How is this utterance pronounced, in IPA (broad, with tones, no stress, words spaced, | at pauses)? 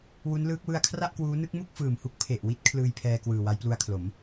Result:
wu˦˥nlɯː˦˥k̚ wɯ˧a̯kʰra˥˩ʔkwuː˦˥ nɯ˦˥k̚mu˥˩k̚fɯː˨˩mhu˦˥k̚ pʰe˨˩ʔwi˦˥t̚ kʰlɯː˧jpʰɛː˧kwɯː˨˩ wa˦˥jplu˦˥a̯kʰlo˩˦m